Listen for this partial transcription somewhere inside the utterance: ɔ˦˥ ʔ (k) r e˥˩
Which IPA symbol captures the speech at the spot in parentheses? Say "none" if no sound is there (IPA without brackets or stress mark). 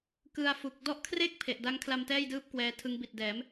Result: kʰ